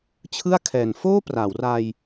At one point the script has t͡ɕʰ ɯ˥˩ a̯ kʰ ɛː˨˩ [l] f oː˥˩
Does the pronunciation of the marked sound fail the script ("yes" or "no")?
yes